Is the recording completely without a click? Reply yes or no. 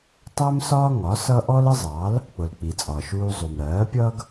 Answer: yes